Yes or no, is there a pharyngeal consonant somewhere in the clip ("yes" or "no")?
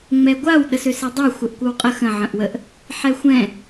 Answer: yes